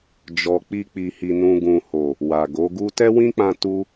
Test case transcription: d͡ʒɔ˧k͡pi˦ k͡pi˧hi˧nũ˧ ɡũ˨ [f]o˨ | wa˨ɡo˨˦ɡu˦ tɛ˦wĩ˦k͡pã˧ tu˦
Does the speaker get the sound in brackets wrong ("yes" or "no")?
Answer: yes